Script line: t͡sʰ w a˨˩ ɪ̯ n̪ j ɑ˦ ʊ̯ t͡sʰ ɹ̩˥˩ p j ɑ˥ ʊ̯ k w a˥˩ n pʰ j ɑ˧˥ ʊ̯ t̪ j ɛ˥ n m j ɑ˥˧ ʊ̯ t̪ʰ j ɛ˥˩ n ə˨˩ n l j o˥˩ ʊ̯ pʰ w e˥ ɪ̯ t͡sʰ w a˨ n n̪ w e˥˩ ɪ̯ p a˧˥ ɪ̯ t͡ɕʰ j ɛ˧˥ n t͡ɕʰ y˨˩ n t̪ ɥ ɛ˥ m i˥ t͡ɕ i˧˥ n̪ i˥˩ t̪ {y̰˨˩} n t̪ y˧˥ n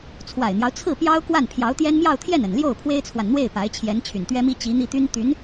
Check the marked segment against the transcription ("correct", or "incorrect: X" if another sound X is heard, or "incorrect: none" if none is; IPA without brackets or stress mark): incorrect: y˥